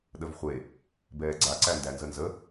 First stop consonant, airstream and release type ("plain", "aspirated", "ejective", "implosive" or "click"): implosive